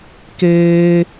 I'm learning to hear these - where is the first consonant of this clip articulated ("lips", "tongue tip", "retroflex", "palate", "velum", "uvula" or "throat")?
velum